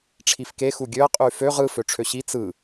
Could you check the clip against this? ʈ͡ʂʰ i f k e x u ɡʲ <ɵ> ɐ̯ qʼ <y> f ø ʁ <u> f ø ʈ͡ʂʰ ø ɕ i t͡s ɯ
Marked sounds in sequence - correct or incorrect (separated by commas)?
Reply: incorrect, correct, incorrect